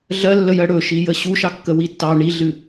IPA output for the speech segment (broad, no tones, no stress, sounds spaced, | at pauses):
ɮ ɜ lː ə j ɜ ɽ ɵ ʃ i j ə ɕ u ʃ ɑ kː ə w i tː ɑ ɳ i ɮ ɨ